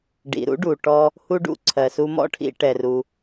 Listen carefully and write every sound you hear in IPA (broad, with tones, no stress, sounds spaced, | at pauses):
ɖ ḭ˩ ɾ ṵ˥ ɖ u˩ ʈ ɔ˧ | h u˥ ɖ ṵ˧ ǀʰ ɜ˩ s u˧ m ɔ̰˥ ʈʰ ḭ˧ ʈ ɛ˩ r u˩